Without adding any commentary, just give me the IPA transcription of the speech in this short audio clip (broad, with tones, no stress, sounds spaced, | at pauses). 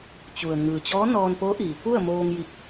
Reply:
t͡ɕ u˩ ə̯ ŋ ɯː˩ t͡ɕ ɔː˧˥ n ɔː˧ n p o˧˥ ʔ iː˩ p u˥˨ ə̯ m oː˧ ŋ j i˧˩ k̚